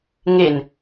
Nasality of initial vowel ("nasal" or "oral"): oral